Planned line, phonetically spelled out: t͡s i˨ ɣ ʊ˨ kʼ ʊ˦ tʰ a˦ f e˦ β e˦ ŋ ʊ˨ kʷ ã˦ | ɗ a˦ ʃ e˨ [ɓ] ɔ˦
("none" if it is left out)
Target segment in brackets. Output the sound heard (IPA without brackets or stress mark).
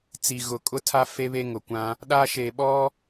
ɓ